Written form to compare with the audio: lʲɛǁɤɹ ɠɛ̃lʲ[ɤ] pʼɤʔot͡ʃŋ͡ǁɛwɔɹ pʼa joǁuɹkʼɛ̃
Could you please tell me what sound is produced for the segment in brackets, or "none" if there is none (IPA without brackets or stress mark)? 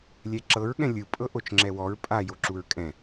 ɯ